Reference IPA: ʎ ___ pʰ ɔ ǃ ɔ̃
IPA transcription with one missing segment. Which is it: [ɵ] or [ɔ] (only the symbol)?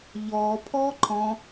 ɔ